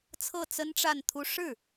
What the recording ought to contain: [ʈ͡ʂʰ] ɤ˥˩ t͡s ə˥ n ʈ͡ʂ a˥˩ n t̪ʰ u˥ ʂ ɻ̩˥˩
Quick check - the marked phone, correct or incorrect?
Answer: incorrect: t͡sʰ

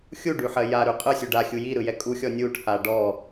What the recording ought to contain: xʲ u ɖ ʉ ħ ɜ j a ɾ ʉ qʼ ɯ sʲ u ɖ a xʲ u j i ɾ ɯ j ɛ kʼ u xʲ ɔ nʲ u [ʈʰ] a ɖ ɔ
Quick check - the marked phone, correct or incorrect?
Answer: correct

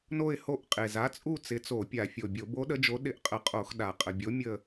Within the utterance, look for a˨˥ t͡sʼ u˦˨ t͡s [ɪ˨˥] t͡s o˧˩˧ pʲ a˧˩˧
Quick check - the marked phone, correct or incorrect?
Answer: correct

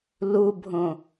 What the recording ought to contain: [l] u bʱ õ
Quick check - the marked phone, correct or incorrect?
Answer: correct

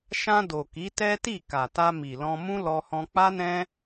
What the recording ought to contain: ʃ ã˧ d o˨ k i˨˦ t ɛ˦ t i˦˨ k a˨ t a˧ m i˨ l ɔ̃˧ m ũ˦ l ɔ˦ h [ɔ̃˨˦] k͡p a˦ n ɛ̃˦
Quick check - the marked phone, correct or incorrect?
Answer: incorrect: ɔ̃˦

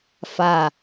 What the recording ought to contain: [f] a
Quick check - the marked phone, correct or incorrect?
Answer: correct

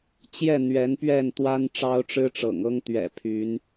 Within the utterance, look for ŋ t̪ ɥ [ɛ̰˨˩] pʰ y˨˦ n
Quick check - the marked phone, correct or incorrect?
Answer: correct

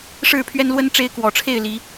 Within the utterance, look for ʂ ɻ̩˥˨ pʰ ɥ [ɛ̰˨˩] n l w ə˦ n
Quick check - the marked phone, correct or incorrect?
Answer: incorrect: ɛ˦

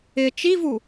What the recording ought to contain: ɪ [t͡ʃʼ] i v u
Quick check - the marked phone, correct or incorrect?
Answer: incorrect: t͡ʃ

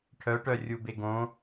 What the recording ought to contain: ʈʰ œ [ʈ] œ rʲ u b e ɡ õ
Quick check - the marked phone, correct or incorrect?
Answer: correct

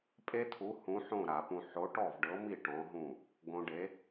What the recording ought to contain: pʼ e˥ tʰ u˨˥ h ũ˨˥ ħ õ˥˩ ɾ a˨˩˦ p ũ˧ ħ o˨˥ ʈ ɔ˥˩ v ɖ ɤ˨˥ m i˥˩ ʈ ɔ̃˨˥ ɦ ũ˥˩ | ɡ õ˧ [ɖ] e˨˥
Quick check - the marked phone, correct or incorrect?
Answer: correct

